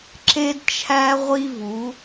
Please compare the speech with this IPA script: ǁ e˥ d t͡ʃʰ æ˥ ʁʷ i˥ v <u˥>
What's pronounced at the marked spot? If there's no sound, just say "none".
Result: u˨˥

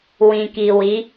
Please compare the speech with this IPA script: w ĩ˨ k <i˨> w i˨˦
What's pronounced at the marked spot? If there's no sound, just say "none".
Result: i˨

